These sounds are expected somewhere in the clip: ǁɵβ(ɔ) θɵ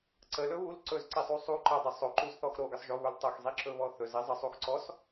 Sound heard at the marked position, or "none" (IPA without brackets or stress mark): ɔ